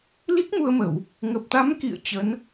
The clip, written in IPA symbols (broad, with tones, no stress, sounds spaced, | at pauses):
l i˦˥ k̚ m u˧ ə̯ m ə˧˩˨ w | ŋ ə˨˩ p̚ t̪ a˨˦ m k ḭ˧˨ ə̯ t͡ɕ ə˨˦ n